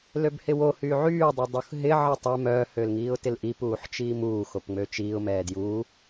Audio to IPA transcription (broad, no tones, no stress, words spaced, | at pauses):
løbhɪwohyː ʕyːdˤɪ dˤuxɦɪ ʕətˤɛ mœːhølŋiːʊ̯ tɪlʔip uːħt͡ʃiːmuː xopŋ͡møt͡ʃiːʊ̯ mɛːdjuː